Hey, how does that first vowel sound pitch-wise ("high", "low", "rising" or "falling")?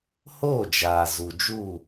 falling